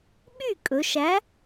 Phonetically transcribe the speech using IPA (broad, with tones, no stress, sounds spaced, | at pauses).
ɓ y˥˩ kʼ ɵ˩˧ ʃ æ˨˥